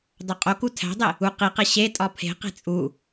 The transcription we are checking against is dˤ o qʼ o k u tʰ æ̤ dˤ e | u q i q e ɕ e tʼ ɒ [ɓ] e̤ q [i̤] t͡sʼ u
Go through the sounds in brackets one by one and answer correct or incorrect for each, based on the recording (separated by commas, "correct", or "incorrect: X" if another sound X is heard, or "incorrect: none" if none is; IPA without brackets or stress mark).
incorrect: pʰ, incorrect: e̤